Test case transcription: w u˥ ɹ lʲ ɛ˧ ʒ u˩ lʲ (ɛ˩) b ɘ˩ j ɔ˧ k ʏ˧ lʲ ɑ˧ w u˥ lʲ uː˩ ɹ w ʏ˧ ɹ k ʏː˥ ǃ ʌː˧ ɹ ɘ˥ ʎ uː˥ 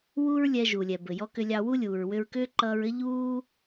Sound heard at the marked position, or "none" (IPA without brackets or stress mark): ɛ˩